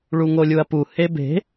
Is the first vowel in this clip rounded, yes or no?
yes